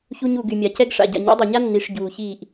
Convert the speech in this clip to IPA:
ç u˧ ɲ u˨ ɡ y˨ mʲ a˨ c ɛ˦ ɡ ʂ a̰˨ ɟ a̰˨ ɲ ɔ̰˨˦ dˤ a˨ ɲ a˦ nː i˨ ʂ ɟ uː˨ ç iː˦˨ ʔ

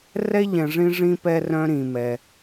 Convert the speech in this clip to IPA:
r ɛ˥ ʎ ɛ̃˨ ʐ ĩ˦ ʐ ĩ˥ p ɛ˦ r œ̃˦ ɾ ĩ˩ m ɛ˩

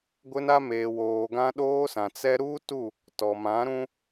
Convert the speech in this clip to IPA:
ɡʷ ɪ˦ n a˦ m eː˨ w oː˨ ɡ ã˦ ɗ oː˦ s ã˨ t͡s ɛ˦ ɾ uː˦ t u˦˨ | t ɔ˨ m ã˨˦ ɾ ũ˦

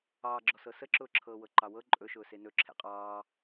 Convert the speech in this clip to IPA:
ɑː ɡ͡ǁ ɔ s ɤ s ə ǁ ʊː ǁʰ ɤː w ɤ ǃ ɑ w ɤ ǃʼ ɵ ʃ ʊː s e n ɵ ǁʰ ḛ qʼ ɑː

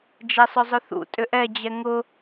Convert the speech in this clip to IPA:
d͡ʒ ɛ sˤ ʏ zˤ ʏ θ ṵ tʼ ʏ ʔ ɛ d͡ʑ ɛ ŋ ʊ

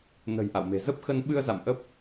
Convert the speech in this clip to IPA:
n ə̤˨˩ j ʔ a̰˧˨ w m e̤˨˩ z ə˦˥ p̚ x ə˧ n ɓ ɨ˧ ə̯ z a̰˧˨ m ʔ ə˦˥ p̚

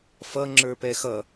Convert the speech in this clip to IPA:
f ʌ ŋ͡ǁ ə˞ p ɛ x ʌ

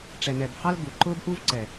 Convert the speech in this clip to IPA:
ʈ͡ʂ ɛ˨ n ɛ˨ b h ɑ˦ l ɡ u˨ ǃ ʊ˦ b ʔ u˦ v ǀ ɛ˨

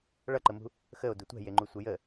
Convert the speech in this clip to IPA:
ɭ ʌ ǃ ə m ṳ | x ə o̯ d u tʷ ɛ̤ j e ŋ͡ǃ u sʷ ə j ə

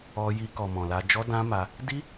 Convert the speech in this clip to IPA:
ɔ˧ j i˧ k ɔ˨ m ɔ̃˨ l a˧ d͡ʒ ɔ˦ d ã˦ m a˧ | d i˦

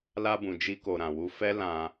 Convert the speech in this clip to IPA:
l a˧ b ũ˨ d͡ʒ i˧ k o˨ ɾ ã˨ w u˧ f ɛ˦ l ã˧

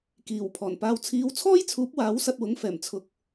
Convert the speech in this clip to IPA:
k iː˨˩ w pʰ ɔː˨˩ n p aː˧ w t͡sʰ iː˨˧ w t͡sʰ ɔː˥ j t͡sʰ uː˨˥ p̚ w aː˨˥ w s ɐ˧ t̚ w ʊ˨˥ ŋ f ɛː˨˩ m t͡sʰ ʊ˧ k̚

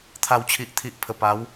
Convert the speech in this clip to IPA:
t̪ʰ a˨˩ w t͡ɕʰ i˨ ʔ t̪ʰ i˨ ʔ pʰ ə˨˩ p a˨˦ w

